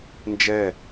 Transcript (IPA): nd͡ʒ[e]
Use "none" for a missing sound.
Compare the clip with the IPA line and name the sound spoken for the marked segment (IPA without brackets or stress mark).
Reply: ɛ